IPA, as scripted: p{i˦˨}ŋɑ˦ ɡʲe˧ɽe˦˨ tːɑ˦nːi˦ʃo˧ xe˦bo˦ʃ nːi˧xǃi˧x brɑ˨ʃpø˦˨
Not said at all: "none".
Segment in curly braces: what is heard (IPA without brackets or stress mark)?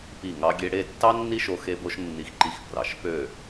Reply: i˦˨